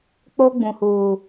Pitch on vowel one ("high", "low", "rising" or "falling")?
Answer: high